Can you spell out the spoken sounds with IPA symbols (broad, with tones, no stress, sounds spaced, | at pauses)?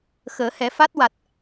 x əː˨˩˦ h ɛ˨˩˦ f a˦˥ t̚ w a˨˩ t̚